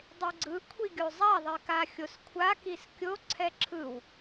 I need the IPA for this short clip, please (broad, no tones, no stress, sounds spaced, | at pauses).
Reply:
dˤ e ɡ͡ǀ ɯ kʷʰ i ɡʲ o zˤ a ðˤ i k a xʲ o s kʷʰ a k i s kʲ o ǀʰ ɛ ǁʰ ɯ w